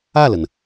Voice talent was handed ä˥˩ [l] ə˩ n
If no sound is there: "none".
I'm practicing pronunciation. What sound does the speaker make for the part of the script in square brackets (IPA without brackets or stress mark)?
l